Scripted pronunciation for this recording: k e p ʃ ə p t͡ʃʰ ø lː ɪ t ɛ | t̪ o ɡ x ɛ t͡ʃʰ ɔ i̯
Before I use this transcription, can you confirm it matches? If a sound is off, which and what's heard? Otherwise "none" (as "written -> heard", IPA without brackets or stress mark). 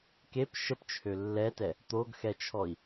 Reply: ɪ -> ɛ